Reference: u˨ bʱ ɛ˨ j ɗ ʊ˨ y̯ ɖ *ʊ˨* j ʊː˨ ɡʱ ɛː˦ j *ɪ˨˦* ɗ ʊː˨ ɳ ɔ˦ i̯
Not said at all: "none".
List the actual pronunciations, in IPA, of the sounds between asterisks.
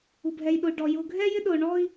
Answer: ɔ˨, ɪ˦

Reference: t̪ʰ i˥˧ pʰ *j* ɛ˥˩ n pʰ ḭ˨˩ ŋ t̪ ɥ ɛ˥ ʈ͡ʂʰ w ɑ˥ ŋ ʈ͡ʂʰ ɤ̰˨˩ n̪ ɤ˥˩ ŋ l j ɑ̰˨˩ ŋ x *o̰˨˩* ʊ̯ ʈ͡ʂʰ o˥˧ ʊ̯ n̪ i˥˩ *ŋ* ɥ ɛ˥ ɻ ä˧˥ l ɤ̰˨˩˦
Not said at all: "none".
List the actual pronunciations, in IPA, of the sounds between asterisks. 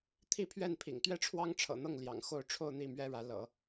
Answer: ɥ, o˥˧, m

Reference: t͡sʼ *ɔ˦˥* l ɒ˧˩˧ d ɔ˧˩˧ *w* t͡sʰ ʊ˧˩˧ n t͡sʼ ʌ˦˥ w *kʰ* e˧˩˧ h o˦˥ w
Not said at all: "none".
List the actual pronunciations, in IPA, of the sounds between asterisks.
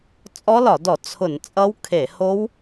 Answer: ɔ˦˥, none, kʰ

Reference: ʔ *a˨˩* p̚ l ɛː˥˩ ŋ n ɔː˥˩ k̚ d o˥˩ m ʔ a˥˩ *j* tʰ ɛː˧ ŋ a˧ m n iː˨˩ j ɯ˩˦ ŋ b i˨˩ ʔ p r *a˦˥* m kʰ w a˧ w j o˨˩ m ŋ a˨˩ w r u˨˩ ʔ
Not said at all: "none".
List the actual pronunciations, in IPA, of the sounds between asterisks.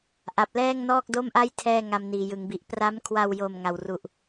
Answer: a˨˩, j, a˦˥

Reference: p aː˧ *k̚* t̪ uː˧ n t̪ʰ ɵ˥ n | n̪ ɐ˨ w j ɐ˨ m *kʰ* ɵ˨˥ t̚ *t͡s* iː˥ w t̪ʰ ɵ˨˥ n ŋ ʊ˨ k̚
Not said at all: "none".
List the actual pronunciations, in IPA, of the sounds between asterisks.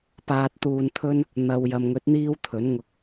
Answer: t̚, ŋ, n̪

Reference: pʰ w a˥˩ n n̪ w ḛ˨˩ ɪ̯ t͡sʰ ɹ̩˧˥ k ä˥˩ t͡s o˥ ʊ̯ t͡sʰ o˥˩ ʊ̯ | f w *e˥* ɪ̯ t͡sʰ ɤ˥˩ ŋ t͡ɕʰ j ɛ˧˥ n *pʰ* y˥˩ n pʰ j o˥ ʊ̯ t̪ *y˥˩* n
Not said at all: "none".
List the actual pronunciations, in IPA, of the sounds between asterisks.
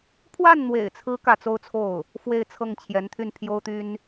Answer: e˥˧, t̪ʰ, y˥

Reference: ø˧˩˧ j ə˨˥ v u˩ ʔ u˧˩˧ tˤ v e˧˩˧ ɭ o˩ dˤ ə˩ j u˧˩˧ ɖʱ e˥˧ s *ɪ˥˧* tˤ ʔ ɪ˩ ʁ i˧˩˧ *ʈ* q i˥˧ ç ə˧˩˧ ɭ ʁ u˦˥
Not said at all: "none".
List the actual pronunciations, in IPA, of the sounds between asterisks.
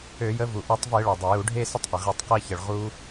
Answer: ɪ˥˧, tˤ

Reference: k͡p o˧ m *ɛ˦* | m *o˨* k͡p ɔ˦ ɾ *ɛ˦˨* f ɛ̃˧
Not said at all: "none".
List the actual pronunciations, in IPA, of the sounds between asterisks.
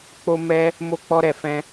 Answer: ɛ˧, o˦, ɛ˦˨

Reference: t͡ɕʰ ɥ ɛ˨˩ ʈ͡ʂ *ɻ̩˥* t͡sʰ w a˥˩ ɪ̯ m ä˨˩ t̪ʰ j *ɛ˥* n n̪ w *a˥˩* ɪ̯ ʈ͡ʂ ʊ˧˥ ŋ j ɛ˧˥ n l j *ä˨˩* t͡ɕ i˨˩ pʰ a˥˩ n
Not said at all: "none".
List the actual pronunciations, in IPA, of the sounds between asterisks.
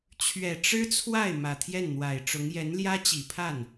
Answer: ɻ̩˥, ɛ˥˩, a˨˩, ä˥

